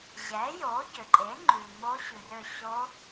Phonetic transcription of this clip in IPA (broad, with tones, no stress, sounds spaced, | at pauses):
ʑ ɛ˩˥ j o˩˥ ɟ ø˩ ǃʼ e˩˥ ŋ͡ǃ ʉ˩ m o˧˥ ɕ ʉ˩ r ø˧˩ ɕ o˧˥